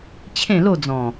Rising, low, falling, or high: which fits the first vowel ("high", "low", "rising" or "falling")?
falling